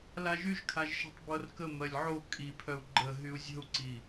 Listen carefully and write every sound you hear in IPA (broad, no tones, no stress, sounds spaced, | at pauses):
l a ʒ y ʒ kʰ a ʒ ʃ ɛ̤ tˤ b ɤ r k ə m ɜ lʲ ʕ o kʼ i pʰ œ u̯ ɡ͡ǃ ə ɦ y u̯ zʲ ə̤ u̯ ǀ i